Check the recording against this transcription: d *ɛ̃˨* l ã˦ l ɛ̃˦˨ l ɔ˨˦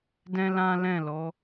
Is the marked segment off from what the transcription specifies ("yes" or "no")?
yes